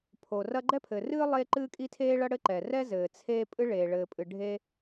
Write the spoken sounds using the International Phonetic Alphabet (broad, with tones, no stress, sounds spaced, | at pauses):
pʰ o˩ r ɐ˥ ɡ͡ǃ ɛ˥ pʰ ɘ˩ r ɨː˥ lˠ eː˥ ǃ ɨː˥ kʼ i˥ tʰ eː˥ ɭ ɐ˥ ɽ ɘ˥ ǃ ɛ˩ r ɛ˥ z ɘː˩ t͡sʰ eː˥ pʼ ɨ˥ ɭ eː˩ ɭ ɘː˩ pʼ ɨ˩ ɖʱ e˥